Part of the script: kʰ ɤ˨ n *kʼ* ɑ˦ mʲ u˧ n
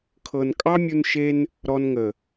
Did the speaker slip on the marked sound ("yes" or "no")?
no